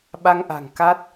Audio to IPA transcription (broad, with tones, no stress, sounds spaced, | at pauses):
ɓ a˧ ŋ ʔ a̤˨˩ ŋ k a˦˥ t̚